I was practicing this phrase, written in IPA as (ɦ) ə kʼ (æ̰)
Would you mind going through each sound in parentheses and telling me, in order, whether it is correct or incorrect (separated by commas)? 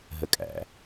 correct, correct